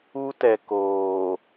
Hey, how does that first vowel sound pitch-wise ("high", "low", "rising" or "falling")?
high